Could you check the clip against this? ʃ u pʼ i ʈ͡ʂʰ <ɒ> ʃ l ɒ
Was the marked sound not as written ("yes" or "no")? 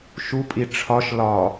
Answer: no